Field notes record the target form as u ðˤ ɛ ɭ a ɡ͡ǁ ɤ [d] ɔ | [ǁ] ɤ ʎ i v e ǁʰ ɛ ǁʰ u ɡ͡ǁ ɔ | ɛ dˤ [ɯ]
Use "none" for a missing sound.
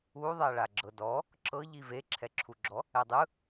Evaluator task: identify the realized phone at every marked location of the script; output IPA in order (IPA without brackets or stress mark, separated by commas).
d, ǁ, ɯ